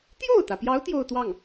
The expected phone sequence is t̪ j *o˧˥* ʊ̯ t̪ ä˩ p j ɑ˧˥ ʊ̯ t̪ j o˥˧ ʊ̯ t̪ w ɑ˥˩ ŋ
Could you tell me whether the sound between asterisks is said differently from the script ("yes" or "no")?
yes